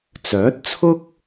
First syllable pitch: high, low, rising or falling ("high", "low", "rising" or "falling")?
rising